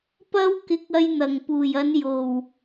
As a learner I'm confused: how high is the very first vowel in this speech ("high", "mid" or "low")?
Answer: low